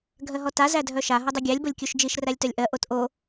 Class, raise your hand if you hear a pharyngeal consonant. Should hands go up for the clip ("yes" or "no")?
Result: no